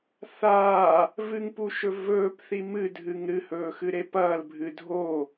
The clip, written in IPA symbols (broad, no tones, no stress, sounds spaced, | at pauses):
θ aː | v ɨ ŋ p u ʃ ɵ v ɵː p θ i m ɨ dʱ ɨ ŋ ɾ ɨ h ɵː x ɨ ɾ e p ɐː l bʱ ɨ dʱ o